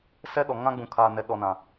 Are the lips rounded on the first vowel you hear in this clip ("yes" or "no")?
no